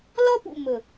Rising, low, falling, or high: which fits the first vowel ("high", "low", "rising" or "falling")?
high